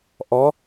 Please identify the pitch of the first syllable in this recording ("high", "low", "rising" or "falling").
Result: rising